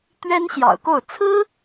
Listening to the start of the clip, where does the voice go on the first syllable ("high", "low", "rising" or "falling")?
high